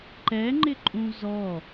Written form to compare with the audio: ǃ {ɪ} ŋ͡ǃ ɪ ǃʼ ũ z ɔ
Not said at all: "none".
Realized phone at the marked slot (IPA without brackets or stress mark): ɛ